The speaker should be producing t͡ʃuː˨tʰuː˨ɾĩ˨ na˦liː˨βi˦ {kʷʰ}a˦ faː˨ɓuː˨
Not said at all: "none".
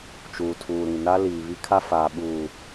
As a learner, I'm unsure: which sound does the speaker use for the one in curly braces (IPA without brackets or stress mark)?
kʰ